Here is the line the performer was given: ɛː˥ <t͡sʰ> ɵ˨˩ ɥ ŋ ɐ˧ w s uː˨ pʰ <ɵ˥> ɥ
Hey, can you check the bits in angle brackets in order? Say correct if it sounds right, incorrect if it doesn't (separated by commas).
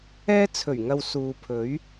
correct, incorrect